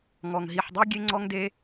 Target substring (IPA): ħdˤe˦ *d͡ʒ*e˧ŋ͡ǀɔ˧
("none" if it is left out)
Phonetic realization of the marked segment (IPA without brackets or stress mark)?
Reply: ɡʲ